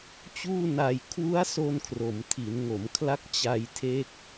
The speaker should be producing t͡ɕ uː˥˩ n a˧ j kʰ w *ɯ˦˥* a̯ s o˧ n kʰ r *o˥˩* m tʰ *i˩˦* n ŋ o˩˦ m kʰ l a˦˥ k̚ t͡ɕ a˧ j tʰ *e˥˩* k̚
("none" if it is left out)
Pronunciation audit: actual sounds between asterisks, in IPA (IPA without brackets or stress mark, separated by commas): u˦˥, o˩˦, i˩˦, e˦˥